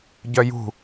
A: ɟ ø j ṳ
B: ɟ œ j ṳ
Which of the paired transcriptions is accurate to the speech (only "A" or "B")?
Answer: B